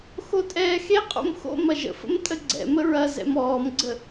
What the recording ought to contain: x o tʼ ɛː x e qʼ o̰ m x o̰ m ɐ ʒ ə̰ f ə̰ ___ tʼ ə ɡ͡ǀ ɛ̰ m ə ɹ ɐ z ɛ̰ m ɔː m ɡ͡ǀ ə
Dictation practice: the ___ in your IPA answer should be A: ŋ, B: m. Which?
B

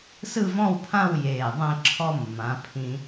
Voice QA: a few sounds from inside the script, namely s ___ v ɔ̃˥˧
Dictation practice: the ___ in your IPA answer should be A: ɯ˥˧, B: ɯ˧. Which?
A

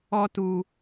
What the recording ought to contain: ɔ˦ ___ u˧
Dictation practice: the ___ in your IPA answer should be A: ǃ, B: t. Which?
B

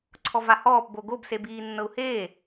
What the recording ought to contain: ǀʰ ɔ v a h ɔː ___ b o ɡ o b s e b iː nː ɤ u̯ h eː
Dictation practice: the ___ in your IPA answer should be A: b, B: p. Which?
B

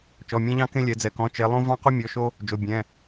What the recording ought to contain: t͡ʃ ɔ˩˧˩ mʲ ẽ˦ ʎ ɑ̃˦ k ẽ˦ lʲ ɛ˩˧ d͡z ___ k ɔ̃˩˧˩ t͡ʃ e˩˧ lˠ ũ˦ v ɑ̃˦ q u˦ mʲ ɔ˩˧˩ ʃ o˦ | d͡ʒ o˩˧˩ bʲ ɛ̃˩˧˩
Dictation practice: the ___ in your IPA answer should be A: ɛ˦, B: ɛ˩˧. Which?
B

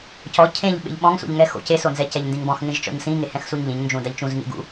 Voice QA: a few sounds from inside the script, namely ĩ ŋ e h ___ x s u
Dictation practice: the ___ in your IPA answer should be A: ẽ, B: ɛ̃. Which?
B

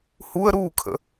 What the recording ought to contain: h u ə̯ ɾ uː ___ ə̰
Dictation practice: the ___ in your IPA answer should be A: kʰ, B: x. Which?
A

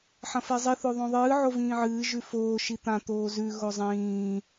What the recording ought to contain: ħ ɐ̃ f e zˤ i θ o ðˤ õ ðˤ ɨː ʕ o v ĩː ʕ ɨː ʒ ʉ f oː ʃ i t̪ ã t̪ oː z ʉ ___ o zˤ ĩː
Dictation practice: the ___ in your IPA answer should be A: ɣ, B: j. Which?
A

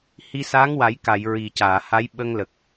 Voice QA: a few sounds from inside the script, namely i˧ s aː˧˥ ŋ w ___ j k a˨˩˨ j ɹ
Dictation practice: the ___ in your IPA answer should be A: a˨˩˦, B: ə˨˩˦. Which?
A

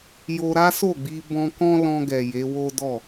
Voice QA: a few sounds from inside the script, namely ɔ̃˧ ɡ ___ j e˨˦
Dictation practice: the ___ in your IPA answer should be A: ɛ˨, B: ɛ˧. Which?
A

